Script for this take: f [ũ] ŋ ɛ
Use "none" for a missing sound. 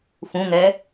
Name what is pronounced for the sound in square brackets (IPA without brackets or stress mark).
ũ